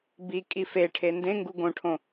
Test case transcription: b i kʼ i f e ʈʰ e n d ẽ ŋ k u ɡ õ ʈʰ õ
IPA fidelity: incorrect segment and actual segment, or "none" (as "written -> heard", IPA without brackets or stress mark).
k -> ɡ